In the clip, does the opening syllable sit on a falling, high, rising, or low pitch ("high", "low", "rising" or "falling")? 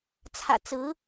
low